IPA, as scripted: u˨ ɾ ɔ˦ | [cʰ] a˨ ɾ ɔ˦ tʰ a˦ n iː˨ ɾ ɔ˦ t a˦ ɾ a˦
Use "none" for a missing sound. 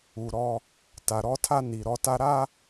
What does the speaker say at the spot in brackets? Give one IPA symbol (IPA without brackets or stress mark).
t